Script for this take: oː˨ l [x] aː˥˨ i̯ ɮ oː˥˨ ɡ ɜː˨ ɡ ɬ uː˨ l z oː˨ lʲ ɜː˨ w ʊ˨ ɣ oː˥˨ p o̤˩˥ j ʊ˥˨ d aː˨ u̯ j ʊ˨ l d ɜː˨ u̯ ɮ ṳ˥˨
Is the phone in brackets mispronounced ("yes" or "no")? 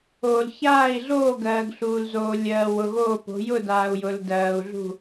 yes